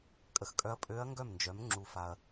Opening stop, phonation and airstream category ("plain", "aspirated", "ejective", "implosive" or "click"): ejective